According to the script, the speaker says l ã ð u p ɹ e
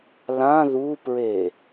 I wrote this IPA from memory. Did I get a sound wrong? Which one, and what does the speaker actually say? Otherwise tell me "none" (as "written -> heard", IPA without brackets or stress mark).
none